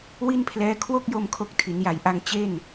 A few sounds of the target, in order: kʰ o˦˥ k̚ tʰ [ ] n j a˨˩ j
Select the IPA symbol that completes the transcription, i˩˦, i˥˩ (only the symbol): i˩˦